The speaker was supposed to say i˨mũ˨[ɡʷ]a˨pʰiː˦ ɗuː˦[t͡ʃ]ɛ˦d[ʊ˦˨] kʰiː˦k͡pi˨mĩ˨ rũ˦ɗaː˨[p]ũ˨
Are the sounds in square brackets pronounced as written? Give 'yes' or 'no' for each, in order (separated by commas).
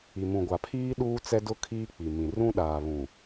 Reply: yes, no, no, no